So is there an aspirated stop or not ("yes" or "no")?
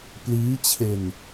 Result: yes